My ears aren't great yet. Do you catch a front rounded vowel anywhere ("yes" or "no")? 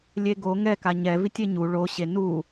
no